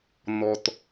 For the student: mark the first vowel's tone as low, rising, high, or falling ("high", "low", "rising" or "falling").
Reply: low